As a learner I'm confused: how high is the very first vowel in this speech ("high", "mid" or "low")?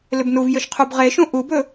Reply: high